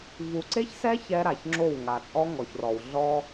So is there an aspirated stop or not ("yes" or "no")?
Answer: no